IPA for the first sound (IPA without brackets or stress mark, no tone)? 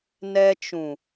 n